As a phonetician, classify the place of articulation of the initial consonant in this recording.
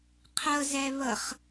uvular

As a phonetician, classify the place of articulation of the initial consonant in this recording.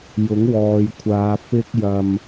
palatal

